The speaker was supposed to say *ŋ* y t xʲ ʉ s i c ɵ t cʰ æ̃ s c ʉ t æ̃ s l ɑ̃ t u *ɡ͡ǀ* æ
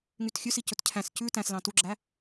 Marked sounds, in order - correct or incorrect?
correct, incorrect

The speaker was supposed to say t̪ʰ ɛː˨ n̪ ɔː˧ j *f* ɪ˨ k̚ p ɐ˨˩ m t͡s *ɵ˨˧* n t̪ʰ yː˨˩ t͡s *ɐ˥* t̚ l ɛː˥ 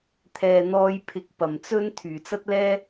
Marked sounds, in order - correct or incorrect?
incorrect, incorrect, correct

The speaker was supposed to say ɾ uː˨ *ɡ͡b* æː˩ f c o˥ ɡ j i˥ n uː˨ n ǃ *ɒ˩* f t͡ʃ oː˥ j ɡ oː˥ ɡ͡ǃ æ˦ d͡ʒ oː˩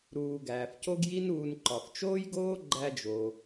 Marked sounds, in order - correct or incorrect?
incorrect, correct

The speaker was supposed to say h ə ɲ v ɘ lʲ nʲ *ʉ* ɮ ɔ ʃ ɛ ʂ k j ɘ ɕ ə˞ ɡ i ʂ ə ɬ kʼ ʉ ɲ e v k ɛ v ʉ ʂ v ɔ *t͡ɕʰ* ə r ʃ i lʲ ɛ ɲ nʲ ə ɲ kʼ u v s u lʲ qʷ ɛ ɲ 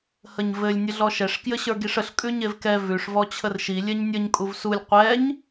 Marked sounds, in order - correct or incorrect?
incorrect, correct

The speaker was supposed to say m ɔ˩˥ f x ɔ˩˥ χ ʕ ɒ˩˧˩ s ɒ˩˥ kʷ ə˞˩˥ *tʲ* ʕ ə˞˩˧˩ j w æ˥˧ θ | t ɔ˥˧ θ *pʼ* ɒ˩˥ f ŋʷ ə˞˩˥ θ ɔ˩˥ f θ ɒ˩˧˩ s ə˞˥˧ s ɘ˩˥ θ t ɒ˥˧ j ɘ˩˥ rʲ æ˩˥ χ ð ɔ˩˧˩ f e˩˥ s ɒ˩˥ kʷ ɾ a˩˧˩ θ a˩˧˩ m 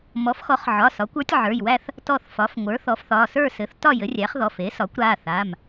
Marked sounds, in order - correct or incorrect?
correct, incorrect

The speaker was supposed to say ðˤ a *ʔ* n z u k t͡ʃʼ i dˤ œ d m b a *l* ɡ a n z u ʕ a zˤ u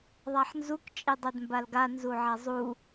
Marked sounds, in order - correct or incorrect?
incorrect, correct

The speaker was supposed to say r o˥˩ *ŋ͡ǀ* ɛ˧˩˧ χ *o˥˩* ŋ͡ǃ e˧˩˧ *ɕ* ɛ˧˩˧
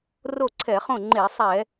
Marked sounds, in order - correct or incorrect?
incorrect, incorrect, incorrect

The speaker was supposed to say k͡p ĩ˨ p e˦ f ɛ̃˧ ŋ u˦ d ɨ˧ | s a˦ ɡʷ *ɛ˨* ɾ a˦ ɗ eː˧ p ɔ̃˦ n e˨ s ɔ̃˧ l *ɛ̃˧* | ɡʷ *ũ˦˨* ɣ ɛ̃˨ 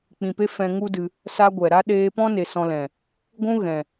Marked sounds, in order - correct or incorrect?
correct, incorrect, incorrect

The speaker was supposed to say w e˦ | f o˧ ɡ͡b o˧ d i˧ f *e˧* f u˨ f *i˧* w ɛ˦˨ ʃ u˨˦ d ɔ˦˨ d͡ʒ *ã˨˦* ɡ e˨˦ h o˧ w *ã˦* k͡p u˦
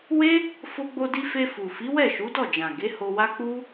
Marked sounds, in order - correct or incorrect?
correct, incorrect, incorrect, incorrect

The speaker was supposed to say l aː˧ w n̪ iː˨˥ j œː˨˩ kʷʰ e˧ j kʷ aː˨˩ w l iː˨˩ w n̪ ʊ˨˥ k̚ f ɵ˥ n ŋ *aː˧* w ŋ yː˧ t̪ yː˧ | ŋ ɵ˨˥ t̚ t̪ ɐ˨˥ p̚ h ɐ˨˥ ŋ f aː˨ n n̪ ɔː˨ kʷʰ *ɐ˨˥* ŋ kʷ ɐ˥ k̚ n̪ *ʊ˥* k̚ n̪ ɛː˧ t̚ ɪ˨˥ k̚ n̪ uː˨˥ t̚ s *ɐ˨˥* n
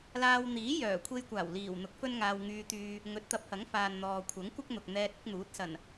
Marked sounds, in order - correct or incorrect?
correct, correct, incorrect, incorrect

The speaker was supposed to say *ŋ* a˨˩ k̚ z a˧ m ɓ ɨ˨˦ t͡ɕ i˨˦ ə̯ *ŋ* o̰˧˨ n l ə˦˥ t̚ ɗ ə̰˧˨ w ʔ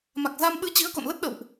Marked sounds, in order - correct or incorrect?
incorrect, incorrect

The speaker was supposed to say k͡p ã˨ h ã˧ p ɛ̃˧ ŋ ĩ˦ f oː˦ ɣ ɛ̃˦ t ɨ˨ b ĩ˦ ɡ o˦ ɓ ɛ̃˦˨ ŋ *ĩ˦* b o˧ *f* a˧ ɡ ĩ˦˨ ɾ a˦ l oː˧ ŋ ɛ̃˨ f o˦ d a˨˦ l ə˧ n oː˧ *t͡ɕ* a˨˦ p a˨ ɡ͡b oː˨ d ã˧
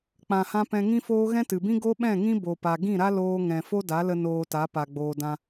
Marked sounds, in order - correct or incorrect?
correct, incorrect, incorrect

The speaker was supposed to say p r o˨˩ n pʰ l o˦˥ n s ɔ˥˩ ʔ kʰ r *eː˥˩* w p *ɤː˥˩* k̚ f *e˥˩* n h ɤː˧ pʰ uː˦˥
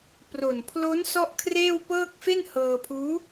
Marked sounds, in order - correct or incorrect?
correct, correct, correct

